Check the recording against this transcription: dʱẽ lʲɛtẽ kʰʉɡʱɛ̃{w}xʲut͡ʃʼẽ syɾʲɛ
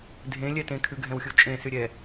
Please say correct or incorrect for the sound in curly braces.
correct